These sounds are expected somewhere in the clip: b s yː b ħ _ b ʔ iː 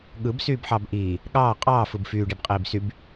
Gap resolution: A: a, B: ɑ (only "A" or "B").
B